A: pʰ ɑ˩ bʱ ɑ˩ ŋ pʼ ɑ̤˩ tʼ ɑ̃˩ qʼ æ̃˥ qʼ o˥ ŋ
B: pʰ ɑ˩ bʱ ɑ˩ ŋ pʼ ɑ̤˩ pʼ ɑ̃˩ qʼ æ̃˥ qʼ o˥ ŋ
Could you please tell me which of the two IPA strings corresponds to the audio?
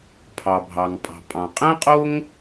B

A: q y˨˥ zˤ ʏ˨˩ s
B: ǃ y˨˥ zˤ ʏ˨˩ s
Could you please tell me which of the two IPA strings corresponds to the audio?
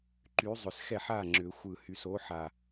B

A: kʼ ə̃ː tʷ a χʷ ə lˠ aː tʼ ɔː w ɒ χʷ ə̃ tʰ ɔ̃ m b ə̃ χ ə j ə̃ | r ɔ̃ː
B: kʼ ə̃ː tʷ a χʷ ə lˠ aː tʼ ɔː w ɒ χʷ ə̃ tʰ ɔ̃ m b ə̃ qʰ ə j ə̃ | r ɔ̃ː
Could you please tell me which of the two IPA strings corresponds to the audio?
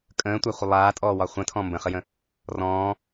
A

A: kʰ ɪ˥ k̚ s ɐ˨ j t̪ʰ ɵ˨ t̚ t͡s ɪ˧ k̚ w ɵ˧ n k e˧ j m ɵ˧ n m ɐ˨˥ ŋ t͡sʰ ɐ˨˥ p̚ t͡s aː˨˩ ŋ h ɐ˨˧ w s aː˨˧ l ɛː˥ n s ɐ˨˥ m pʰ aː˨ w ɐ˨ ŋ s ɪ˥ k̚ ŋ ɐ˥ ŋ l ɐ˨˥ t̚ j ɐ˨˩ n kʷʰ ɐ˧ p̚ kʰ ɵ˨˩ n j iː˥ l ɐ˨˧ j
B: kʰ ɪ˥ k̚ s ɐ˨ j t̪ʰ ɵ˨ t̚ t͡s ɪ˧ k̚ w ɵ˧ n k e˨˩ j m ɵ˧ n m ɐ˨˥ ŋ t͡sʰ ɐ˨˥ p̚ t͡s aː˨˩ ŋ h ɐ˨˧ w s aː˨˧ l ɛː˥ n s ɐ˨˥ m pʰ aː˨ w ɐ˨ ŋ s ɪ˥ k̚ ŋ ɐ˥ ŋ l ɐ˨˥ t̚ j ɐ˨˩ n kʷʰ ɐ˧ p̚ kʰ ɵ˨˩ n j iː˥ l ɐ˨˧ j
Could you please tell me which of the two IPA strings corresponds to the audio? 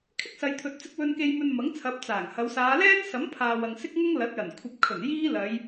A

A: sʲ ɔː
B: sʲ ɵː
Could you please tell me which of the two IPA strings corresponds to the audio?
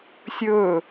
B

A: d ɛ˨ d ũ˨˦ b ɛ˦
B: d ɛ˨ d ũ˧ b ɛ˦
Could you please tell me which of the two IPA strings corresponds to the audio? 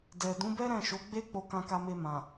A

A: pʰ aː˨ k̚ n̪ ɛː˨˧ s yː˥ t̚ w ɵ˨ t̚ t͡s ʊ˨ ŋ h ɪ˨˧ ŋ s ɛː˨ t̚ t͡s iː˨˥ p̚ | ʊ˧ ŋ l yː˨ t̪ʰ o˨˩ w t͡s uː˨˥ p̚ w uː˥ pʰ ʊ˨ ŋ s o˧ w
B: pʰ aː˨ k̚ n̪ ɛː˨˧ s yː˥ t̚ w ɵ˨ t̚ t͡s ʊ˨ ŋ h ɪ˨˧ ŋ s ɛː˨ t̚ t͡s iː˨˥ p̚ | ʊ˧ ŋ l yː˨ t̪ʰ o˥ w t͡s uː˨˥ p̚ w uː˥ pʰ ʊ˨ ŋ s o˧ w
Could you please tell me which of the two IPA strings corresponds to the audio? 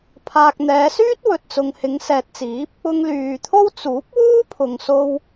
B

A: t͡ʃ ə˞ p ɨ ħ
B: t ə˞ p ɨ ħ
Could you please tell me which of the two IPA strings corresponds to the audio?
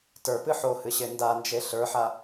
B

